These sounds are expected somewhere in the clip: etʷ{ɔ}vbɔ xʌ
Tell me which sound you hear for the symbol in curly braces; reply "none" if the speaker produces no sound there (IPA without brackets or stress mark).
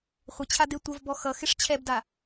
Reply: ʌ